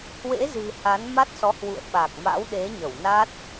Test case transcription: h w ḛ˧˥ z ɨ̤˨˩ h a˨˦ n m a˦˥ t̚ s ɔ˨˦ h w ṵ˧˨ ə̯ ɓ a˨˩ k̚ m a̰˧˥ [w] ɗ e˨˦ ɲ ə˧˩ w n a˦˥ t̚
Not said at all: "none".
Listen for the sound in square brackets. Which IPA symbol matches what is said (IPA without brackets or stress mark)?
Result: w